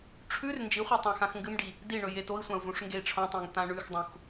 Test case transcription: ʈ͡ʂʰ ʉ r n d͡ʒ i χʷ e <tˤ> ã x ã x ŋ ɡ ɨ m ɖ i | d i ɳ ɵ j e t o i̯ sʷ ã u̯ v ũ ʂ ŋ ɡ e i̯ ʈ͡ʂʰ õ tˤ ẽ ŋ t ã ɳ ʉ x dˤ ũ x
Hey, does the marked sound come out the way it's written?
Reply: yes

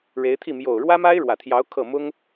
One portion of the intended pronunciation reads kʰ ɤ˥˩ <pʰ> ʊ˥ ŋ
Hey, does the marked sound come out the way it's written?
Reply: no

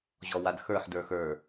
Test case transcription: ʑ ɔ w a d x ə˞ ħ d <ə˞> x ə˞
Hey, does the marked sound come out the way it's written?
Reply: yes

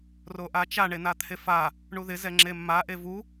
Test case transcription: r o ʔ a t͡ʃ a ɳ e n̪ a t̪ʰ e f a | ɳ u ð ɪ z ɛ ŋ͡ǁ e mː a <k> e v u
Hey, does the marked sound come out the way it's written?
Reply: no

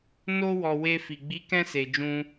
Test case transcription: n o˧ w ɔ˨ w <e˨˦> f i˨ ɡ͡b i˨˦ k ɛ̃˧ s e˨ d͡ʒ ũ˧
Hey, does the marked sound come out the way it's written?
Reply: no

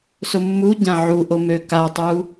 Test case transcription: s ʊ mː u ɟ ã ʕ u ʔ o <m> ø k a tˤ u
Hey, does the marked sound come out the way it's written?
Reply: yes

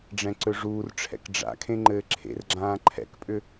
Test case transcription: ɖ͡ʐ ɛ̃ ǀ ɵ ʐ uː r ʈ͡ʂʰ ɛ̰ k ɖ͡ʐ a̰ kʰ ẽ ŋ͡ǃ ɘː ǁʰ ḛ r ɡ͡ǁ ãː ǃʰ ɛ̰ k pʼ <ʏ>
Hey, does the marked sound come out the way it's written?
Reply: yes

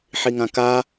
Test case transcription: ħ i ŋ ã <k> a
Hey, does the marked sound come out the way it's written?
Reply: yes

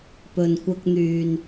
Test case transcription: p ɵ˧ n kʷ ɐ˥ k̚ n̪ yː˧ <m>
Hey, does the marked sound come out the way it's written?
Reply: no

